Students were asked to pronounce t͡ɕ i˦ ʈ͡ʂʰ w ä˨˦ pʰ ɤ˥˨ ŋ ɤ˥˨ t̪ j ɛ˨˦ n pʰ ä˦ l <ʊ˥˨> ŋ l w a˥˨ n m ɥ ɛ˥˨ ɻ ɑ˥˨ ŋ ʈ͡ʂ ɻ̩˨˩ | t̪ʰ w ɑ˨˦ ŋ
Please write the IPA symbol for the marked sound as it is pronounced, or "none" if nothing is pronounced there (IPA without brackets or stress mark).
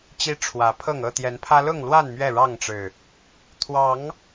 ʊ˥˨